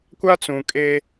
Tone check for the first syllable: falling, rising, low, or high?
high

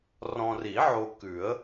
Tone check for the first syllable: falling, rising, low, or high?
low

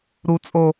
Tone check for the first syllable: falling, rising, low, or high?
high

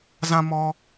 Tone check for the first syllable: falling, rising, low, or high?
high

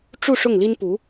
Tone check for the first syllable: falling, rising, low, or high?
falling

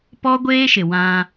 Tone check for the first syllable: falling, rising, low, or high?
high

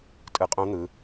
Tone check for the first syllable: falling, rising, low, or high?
rising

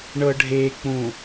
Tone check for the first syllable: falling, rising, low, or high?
low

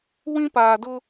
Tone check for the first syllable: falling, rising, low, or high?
high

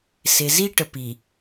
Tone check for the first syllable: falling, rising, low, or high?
low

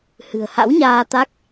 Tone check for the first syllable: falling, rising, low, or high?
low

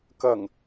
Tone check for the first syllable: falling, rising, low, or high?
low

